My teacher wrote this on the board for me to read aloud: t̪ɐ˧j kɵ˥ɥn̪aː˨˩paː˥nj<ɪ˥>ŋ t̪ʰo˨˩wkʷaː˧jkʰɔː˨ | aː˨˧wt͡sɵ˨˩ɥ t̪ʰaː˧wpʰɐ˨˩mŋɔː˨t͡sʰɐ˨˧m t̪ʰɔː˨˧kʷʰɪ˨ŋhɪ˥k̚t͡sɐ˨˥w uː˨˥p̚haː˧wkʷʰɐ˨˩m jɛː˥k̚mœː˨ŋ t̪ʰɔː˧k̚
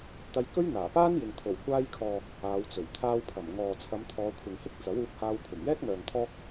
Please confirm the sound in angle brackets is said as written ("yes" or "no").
no